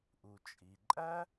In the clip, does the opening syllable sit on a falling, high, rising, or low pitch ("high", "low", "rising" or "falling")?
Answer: low